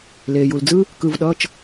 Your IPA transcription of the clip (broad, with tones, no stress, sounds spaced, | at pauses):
l eː˩ j u˩ l d͡z ɯ˦ | k ɯ˩˧˩ v ɗ ʌː˩˧˩ t͡ʃ